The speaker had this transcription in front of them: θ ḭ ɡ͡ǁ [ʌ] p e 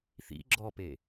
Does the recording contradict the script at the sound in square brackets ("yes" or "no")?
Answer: yes